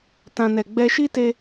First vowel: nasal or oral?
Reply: nasal